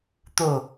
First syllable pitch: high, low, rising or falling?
falling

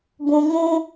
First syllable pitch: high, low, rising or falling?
low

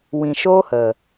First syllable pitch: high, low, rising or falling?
low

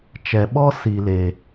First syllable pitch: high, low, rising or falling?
low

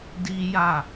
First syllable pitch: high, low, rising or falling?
high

